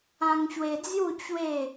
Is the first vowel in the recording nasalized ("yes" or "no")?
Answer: yes